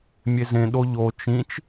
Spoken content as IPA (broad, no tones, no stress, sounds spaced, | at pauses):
mʲ e z ẽ ɗ o ʎ o t͡ʃ ĩ t͡ʃ